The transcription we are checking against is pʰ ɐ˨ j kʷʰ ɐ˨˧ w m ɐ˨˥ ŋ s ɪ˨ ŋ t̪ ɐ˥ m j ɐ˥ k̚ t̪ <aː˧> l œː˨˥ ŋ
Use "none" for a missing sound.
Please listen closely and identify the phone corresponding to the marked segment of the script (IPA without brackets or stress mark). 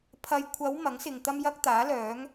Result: aː˨˥